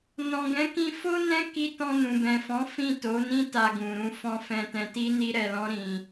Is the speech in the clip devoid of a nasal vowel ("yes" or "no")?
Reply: no